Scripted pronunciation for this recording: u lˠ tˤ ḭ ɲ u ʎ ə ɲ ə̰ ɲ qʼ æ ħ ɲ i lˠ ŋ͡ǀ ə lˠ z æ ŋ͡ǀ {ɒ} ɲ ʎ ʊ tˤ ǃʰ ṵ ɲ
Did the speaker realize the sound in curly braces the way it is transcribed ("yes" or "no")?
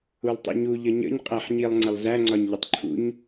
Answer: yes